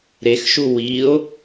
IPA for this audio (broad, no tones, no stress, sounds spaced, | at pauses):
ɾ e x ʃ u w i o̯